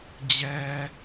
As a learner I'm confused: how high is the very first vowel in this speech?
mid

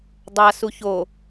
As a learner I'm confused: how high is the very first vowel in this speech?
low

